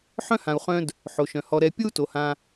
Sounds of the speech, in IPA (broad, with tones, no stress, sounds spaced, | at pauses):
ħ œ̃˥ h ã˨ u̯ χ œ̃˦ d | ħ o˩ ʃ œ̃˩ h ɔ˨ ɾ ɛ˨ pʲ o˥ u̯ t o˩ h ã˨